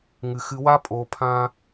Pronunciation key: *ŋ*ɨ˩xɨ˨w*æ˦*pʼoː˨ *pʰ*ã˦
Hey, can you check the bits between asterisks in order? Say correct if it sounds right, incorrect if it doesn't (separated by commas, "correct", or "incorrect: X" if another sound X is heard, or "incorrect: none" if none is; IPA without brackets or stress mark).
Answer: correct, incorrect: a˦, correct